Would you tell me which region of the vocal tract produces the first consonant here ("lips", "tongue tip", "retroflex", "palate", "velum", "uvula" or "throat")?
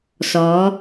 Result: tongue tip